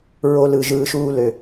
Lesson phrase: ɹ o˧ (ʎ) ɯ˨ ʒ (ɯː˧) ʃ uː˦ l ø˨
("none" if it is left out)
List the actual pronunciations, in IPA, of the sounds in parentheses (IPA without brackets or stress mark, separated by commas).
l, ɯː˧